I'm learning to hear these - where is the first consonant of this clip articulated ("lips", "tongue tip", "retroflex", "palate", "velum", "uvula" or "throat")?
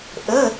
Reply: throat